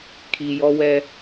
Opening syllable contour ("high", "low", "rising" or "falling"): low